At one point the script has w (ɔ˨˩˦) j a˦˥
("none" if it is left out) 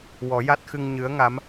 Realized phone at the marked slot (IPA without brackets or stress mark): ɔ˨˩˦